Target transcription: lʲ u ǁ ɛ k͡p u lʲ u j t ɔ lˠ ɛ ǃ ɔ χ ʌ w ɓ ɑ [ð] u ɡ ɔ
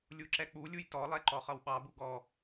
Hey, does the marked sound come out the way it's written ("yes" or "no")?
no